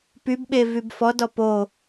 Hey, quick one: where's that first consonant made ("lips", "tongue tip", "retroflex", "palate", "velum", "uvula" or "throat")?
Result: lips